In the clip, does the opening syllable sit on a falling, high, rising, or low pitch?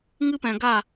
high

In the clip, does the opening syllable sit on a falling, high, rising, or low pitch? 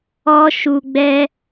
high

